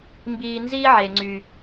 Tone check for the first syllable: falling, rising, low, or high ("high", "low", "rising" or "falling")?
high